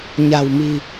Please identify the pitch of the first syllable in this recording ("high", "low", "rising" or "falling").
low